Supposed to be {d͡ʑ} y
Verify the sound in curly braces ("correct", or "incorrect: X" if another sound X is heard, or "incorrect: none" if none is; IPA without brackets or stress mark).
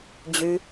correct